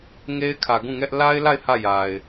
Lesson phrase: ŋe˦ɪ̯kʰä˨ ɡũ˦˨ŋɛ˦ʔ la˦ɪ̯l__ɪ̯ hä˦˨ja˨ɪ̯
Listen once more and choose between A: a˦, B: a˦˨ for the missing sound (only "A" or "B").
B